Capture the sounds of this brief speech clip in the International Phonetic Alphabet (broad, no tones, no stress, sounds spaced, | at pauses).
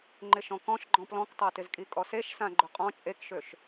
ŋ͡ǃ ɪ ʃ ɔ̃ k ɔ̃ ʃ ɡ͡ǃ ɔ̃ p l ɔ̃ k tˤ a t ɪ z kʼ i kʼ ɔ s e ʃ s ã ɡ͡ǃ ʊ qʼ ɔ̃ t͡ʃʼ e k ʃ ø ʃ